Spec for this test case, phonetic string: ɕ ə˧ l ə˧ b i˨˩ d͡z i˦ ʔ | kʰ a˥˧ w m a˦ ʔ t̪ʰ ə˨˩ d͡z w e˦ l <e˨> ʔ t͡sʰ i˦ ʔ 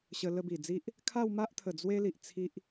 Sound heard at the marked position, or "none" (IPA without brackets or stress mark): i˨